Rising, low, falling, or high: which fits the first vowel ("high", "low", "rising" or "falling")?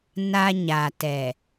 high